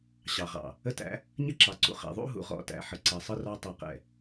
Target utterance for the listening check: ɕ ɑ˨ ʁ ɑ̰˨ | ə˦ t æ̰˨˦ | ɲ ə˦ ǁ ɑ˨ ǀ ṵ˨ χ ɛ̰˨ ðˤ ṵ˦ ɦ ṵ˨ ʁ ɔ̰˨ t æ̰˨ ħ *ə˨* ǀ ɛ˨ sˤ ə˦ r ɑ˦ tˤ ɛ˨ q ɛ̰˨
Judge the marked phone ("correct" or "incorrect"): correct